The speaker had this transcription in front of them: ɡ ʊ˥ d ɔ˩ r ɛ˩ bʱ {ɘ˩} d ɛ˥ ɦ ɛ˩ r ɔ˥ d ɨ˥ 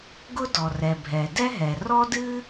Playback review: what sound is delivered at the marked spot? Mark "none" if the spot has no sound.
ɛ˩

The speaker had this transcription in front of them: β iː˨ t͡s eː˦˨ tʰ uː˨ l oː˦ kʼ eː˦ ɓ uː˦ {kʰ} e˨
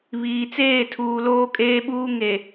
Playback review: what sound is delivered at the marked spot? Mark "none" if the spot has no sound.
ŋ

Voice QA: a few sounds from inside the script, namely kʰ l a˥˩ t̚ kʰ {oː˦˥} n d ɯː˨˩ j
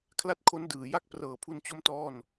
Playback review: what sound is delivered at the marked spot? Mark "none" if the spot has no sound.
o˦˥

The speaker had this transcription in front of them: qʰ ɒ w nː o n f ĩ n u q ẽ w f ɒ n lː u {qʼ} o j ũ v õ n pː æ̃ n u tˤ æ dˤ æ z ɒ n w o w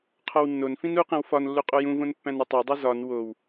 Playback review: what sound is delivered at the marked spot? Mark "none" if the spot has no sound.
qʼ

